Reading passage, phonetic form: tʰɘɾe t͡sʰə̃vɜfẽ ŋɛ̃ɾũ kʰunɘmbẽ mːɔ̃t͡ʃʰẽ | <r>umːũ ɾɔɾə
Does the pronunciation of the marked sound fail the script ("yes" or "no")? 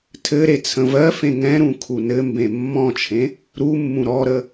yes